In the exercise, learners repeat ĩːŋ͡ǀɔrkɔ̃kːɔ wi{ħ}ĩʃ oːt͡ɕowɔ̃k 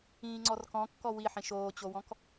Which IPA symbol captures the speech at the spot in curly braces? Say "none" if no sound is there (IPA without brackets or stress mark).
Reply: ħ